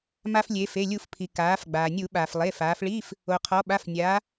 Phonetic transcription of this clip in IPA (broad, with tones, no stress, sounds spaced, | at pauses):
m a˧ f lʲ e˩˧ f e˩˧˩ lʲ u˧˩˧ f pʰ i˩ k aː˩˧ f ɡ͡b aː˩ nʲ u˧˩˧ ɓ aː˩ f lˠ e˩˧˩ f aː˩˧ f ɭ iː˧˥˧ f | o˩ qʰ ɔ˩˧ ɓ a˩˧˩ f nʲ aː˩˧